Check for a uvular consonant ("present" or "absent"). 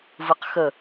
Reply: present